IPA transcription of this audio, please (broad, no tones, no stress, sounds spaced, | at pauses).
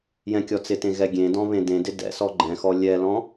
j ɛ̃ kʲ ɔ t͡s ɪ t ẽ ɣ ɛ ɡʲ ẽ d ɔ̃ β ẽ d ẽ d ɪ d ɛ̰ s ɔ ɡ͡ǃ ɛ̃ x ɔ lʲ ɛ l ɔ̃